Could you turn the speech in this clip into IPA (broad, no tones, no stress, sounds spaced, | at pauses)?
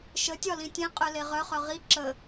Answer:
ʃ ə tʲ ɒ l ĩ tʲ ẽ qʼ œ l e ʁ œ χ œ ʁ i ǁ ə